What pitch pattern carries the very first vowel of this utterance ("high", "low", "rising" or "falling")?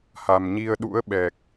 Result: low